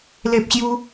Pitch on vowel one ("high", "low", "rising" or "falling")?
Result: high